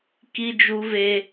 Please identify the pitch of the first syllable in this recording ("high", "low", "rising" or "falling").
high